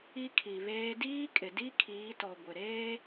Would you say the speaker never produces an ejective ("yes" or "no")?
no